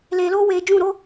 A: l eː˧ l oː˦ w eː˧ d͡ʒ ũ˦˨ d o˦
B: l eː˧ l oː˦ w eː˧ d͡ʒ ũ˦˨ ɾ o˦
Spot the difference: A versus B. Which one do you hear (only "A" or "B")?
B